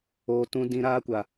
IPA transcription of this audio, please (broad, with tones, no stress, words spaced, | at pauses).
oː˨tũ˧ dĩ˧ɾaː˦kʷa˨